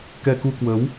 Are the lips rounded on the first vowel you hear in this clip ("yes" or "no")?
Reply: no